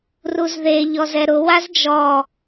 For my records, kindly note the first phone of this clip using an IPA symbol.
r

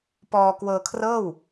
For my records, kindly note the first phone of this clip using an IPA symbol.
p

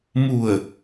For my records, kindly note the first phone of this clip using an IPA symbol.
m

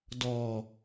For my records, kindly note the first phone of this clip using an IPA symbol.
d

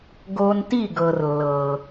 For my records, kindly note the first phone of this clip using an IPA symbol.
ɡ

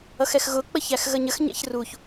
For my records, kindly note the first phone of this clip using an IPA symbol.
ʌ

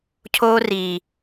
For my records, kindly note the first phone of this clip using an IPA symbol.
cʰ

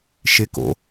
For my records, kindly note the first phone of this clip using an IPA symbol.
ʃ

